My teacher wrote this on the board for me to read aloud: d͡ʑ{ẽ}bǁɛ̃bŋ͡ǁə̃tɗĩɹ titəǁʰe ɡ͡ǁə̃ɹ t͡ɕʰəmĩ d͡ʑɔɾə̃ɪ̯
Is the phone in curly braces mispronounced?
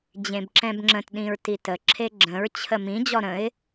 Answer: no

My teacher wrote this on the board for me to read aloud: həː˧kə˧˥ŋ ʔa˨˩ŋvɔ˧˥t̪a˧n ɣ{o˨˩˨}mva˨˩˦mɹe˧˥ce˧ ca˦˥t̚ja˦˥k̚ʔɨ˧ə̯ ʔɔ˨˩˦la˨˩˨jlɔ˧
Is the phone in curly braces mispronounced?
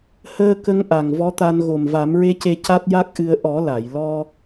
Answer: yes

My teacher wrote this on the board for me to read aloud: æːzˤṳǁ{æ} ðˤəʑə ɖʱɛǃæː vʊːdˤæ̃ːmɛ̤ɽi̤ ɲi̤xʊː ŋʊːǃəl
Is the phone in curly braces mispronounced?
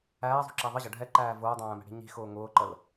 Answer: no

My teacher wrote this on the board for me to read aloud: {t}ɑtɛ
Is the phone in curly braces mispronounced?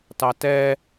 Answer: no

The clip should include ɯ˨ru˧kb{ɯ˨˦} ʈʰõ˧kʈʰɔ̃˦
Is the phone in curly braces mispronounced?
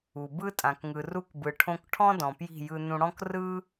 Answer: yes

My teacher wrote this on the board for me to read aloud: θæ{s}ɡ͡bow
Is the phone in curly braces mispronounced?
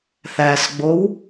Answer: no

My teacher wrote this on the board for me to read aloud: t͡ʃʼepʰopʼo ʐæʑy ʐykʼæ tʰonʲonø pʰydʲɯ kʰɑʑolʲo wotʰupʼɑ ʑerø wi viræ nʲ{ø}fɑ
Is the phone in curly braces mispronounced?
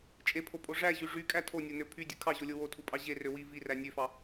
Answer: no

